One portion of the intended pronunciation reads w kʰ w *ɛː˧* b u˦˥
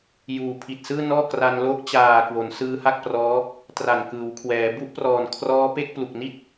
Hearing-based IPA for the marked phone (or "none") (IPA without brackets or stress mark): ɛː˩˦